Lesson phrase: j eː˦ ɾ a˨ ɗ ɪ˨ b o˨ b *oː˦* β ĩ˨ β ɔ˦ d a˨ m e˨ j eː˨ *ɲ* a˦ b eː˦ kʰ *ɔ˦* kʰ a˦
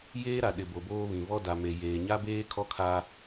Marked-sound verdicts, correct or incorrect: correct, correct, correct

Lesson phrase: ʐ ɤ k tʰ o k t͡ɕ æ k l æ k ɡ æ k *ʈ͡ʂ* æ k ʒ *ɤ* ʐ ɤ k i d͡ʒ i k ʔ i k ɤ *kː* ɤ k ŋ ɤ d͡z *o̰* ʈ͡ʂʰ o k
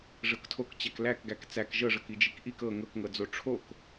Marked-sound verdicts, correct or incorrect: incorrect: t͡s, correct, incorrect: ŋ, incorrect: o

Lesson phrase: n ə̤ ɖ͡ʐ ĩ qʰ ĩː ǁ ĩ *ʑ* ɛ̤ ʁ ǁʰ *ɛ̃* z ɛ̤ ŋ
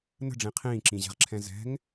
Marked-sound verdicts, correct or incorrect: correct, correct

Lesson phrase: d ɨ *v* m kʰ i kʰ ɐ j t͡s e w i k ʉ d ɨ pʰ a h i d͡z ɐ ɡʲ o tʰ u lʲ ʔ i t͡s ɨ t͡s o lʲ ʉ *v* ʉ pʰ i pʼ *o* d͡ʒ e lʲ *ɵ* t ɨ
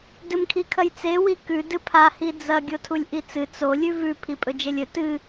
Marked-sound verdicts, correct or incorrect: incorrect: none, correct, incorrect: ɵ, correct

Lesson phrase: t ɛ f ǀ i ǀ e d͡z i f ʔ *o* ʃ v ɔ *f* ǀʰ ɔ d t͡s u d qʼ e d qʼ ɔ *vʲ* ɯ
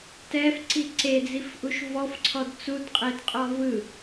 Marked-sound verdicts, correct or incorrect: incorrect: u, correct, incorrect: v

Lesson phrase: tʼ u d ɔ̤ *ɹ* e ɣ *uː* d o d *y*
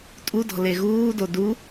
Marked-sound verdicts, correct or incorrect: incorrect: l, correct, incorrect: u

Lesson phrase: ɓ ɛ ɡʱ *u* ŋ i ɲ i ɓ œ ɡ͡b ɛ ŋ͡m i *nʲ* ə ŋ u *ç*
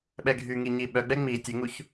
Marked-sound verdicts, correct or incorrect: incorrect: y, incorrect: tʲ, correct

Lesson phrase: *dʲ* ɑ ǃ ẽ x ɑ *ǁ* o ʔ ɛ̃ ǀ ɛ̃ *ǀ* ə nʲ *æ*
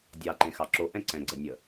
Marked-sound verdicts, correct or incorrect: correct, correct, incorrect: ɡ͡ǀ, incorrect: ə

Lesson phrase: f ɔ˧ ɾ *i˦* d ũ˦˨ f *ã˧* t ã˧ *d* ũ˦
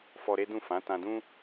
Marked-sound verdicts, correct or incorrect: incorrect: e˦, incorrect: ã˨˦, correct

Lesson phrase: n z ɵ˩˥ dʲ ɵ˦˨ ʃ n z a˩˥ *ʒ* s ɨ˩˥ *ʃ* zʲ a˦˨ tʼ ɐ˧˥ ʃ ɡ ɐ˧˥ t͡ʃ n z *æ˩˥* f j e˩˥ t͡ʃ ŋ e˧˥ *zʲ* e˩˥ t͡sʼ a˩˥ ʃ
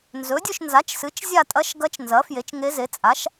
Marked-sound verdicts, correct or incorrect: incorrect: t͡ʃ, incorrect: t͡ʃ, incorrect: ɐ˩˥, incorrect: z

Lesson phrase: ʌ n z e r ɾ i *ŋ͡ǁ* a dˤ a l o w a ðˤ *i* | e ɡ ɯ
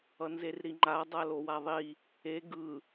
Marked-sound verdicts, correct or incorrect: incorrect: ŋ͡ǃ, correct

